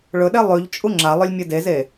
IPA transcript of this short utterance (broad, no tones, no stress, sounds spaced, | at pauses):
ɭ ɵ ɗ e lˠ ʉ ʎ t͡ʃʼ u ŋ͡ǁ a lˠ ɵ lʲ mʲ ɨ d e z e